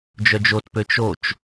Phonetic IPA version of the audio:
d͡ʒ œ d͡ʒ o t p ø t͡ʃ o t͡ʃ

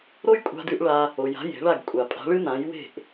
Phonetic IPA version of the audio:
ɾ o˥ j kʷʼ a̤˧ d ʉ˧ ʔ ɭ a˧ | o˩ j a̤˩˥ j e̤˩˥ ɭ a˥˩ ɡ kʷʼ a˩ pʼ a̤˩˥ ɭ ɨ˥ n̪ ã˩˥ j w e̤˥˩ ʔ

